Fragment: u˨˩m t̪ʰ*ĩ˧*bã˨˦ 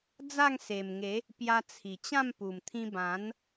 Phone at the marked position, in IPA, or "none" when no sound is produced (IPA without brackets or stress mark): ĩ˧